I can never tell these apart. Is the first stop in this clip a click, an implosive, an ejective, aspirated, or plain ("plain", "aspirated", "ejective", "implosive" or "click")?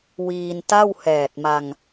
plain